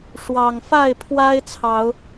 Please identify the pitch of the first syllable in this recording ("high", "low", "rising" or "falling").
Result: low